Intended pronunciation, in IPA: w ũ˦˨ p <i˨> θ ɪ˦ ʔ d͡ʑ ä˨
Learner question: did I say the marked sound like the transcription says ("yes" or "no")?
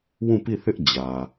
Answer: no